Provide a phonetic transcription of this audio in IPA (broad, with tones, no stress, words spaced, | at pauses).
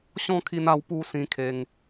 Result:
ɕɔ̃˥˧kʰi˧na˧w pu˥˧sĩ˧kʰe˧ŋ